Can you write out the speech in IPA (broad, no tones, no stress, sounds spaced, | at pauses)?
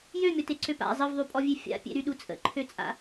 j ø mʲ ɔ t e ǀ ø p a̰ zˤ ə v ðˤ y pʼ ɔ vʲ e fʲ a̰ pʲ ḛ ɾ y ɗ u t͡sʼ ə̰ ǃʰ ø t͡sʼ a̰